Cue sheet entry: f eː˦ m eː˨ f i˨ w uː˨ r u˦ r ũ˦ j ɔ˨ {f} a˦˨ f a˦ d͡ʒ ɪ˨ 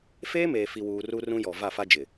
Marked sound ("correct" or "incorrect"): incorrect